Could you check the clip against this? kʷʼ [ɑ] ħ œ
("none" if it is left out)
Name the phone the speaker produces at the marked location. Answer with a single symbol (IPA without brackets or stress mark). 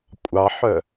ɑ